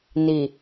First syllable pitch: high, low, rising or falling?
low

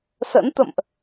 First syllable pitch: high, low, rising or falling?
rising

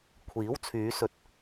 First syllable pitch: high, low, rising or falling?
rising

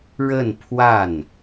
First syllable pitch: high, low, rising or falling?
falling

